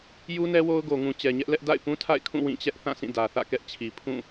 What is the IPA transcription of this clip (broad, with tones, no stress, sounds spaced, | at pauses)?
j u˦ n ɛ˦ w o˦ ʊ̯ ɡ o˨ ŋ ũ˨ t͡ɕ ɛ˨ ɲ ɛ˦ ʔ l ɛ˦ ʔ d a̰˦˨ ɪ̯ p ũ˦ tʰ a̰˦˨ ɪ̯ kʰ ũ˦˨ w ĩ˦˨ t͡ɕ ɛ˦ ʔ θ ã˦˨ s ĩ˦˨ d ä˨ θ ä̰˦˨ k ɛ˦ ʔ t͡ɕʰ i˨ pʰ ũ˦˨